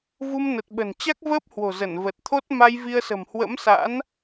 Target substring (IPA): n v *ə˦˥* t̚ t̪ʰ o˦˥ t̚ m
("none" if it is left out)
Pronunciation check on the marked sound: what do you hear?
ə˨˩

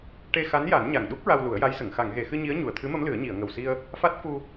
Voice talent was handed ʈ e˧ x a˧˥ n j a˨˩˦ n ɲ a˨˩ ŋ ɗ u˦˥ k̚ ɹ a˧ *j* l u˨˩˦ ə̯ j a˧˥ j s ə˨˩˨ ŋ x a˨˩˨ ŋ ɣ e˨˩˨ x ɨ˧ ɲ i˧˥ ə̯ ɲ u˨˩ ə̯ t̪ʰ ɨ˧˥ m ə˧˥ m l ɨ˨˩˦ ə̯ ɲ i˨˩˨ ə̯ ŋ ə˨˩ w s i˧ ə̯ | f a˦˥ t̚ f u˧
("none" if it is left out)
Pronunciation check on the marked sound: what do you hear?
w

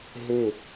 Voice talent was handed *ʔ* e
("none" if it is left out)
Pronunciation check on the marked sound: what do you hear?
ɦ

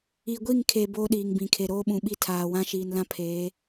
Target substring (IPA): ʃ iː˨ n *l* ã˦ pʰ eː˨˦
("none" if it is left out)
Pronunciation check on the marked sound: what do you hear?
l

